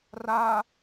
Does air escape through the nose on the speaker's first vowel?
no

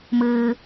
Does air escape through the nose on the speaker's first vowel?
no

